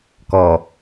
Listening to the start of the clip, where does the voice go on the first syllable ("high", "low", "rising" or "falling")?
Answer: low